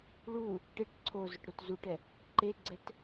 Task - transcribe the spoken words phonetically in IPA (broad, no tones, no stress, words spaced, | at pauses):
ɭu | ʈeʈ ǀʰozʊʈ ɾotzuʈɛ | ǃeɡ͡ǀɛt